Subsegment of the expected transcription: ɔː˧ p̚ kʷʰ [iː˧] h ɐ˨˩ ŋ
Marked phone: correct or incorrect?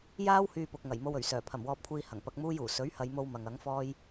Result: correct